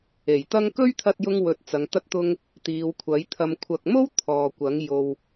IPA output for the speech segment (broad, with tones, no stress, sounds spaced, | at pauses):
e˨˩ j t̪ ɐ˥ ŋ k ɵ˥ ɥ t̪ʰ ɐ˧ t̚ j ʊ˧ ŋ w ɵ˧ t̚ t͡s ɐ˨˧ ŋ t̪ ɐ˥ t̚ t̪ ʊ˥ ŋ | t̪ iː˨˧ w kʷʰ ɐ˨˥ j t̪ʰ ɐ˨ m kʷʰ ɐ˨ k̚ m o˥ w t̪ʰ ɔː˨ kʷ ɐ˨˥ ŋ j o˧ w